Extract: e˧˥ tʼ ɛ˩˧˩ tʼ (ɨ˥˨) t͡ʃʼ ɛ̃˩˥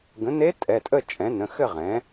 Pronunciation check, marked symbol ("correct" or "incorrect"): incorrect